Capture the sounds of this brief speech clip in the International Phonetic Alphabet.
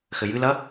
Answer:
xɘjɨlɐ

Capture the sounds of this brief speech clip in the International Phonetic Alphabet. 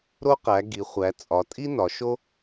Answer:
ɾo˥qæ˩˧ɡi˩˧χʷæ˩˧ t͡sʼɒ˩˧ tʼi˥nɒ˩˧ʃo˥

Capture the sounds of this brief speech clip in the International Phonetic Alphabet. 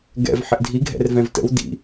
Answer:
ɡɛ̰v ħɪʔdʱiɡʱɛ̰r vɛ̃vtə̰w dḭ

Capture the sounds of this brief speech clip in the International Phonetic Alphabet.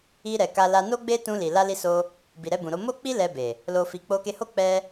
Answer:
i˧ɾɛ˨ ka˧la˧ no˦ɡ͡be˦ tũ˧li˨ la˧li˧so˧ | bi˨ɾɛ˧bũ˨ɾo˧ mo˦k͡pi˦ lɛ˧be˨ | lo˨fi˨ k͡po˧ke˧ho˦ k͡pɛ˧

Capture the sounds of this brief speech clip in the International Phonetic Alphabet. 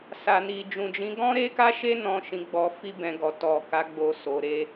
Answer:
sa˨ni˨ d͡ʒũ˨d͡ʒĩ˨˦ ɡɔ̃˦ɾe˦ka˦ʃe˦ nɔ̃˧ ʃĩ˨ɡ͡bɔ˨fi˧ bɛ̃˧ɡɔ˨ tɔ˨ka˨˦ɡ͡bo˧so˨ ɾe˧

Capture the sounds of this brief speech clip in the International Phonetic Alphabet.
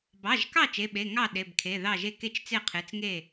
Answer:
bɑ˩˧˩ʒkɑ˥˨ t͡ʃe˩˧˩ɓe˩˧˩ ŋɑ˥˨ ɗe˩˧˩bkʰe˩˧˩ðɑ˥˨ʒe˥˨ ke˥˨t͡ʃt͡se˥˨qʰe˩˧˩t͡s ŋe˥˨

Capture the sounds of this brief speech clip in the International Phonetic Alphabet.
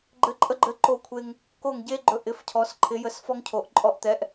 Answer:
ɡ͡ǃɘ˨˥ǃʼə˧ɡ͡ǃɘ˨˥ ǃo˧kʷʰe˧ŋ | ko˧˩ŋɟe˧ ɡ͡ǃɵ˧ʔɪ˨˥f cʰɔ˨˥sǃʰɪ˨˥jə˨˥s fɔ˧ŋcʰo˩˧ʔǃʼɔ˧ʔt̪ɛ˨˥ʔ

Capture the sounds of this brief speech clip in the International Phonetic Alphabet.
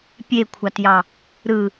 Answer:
pʲekʷʰɑtjɑ | ɾɯ

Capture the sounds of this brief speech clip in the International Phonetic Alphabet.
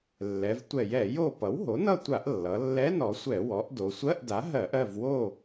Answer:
lːɛ˩˧vtʷɛ˧˩˧jɛ˧˩˧ jo˥˨ pʌ˩˥wɦo˩˥nʌ˥˨tʷa˧˩˧ʔ lːʌ˩˧lːɛ˧˥˧nɔ˩˧sʷɛ˧˩˧ wɔ˩˥ʔdo˩˧ sʷɜ˧˥˧ʔda˩˥ ɦɜ˧˩˧ʔɜ˥˨v wo˥˨

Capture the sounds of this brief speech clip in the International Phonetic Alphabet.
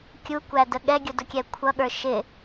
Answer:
kʲukʷædə ɠɛɡʲʊdʊkʲɛ kʷʰʌɠə˞ ʃɪ

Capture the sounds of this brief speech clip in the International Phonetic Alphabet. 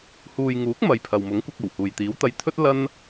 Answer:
huː˨jŋuː˨˥k̚ mɐ˨j pʰɐ˨wmʊ˨˥ŋ kʷɐ˧k̚ ɐ˨˩whuː˨jt̪iː˨˥w t̪ɐ˧jt̪ʰɵ˥t̚ lɐ˥n

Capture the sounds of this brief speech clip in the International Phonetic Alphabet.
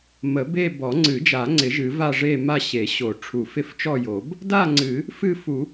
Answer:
mə˨˩˦be˥˧ bɔ˨˩˦ŋ͡ǀɨ˨˩˦d͡ʒa˨˩˦ŋ͡ǀɪ˨˩˦ ʒɨ˨˩˦va˥˧ʐe˥˧ ma˥˧ɕe˨˩˦ɕo˨˩˦ ʈ͡ʂʰu˨˩˦fɪ˥˧ft͡ʃɔ˥˧jo˨˩˦b | da˥˧ŋ͡ǀɨ˨˩˦ | fɨ˥˧fu˨˩˦

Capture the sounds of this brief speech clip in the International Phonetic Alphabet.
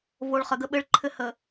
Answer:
vo˨ɭχə˨ɡə˦ ɓɘ˦ɭǃʰɘ˦ hə˨

